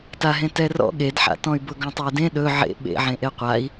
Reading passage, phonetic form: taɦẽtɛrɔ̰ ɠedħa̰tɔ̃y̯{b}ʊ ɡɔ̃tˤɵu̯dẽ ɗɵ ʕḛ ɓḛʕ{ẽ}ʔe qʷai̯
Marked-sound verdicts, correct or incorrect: correct, correct

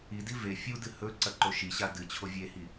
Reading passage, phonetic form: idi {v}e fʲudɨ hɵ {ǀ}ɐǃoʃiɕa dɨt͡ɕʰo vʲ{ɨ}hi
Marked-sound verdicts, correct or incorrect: correct, correct, incorrect

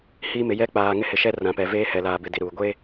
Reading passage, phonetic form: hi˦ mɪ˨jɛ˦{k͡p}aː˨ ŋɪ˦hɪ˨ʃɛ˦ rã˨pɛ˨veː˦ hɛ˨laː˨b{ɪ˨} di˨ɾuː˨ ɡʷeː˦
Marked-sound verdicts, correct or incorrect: correct, correct

